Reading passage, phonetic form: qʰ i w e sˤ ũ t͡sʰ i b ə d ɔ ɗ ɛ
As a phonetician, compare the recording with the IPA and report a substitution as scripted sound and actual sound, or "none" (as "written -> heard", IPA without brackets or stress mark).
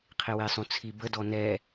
ɗ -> n